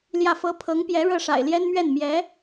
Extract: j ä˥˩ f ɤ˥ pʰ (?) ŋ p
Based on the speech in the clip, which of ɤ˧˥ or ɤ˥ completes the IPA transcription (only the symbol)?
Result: ɤ˧˥